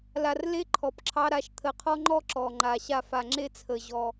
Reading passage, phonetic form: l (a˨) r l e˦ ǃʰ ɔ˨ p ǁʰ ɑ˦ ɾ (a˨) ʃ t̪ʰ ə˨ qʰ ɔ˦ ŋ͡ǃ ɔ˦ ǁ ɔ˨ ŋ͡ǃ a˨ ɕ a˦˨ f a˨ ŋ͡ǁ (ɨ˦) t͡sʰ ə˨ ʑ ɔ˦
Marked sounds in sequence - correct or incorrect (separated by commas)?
correct, correct, incorrect